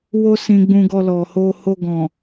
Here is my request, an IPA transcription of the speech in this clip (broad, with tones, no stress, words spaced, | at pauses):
wo˦ sĩ˧ ɡ͡bũ˧ɡɔ˧ lɔ˨ho˧ ho˧ɡɔ̃˨